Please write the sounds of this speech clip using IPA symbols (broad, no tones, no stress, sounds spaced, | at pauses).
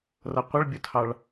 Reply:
r ʌ qʷ ʌ ɭ bʲ ʊ tʰ ɑ ɭ